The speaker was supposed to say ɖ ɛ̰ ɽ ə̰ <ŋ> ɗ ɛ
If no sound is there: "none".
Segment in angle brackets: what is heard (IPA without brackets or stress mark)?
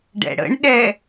ɳ